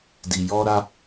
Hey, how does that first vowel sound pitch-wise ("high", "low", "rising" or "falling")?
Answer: low